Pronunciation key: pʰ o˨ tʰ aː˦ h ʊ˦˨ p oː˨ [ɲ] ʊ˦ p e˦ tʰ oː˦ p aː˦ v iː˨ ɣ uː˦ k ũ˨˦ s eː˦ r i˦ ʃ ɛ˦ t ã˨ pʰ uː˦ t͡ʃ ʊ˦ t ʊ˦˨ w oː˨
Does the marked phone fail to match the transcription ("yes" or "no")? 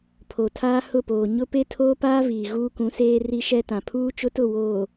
no